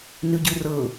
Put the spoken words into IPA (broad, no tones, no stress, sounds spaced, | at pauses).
n ʉ ɟ ʉ r ɤ